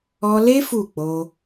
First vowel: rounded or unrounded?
rounded